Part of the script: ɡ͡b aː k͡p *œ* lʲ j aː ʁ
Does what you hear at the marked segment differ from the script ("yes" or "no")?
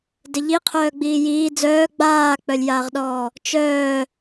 no